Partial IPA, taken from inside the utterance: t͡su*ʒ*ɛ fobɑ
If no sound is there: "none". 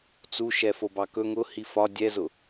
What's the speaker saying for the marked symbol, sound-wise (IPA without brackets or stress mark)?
ʃ